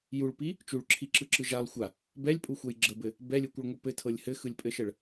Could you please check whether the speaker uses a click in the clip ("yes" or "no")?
yes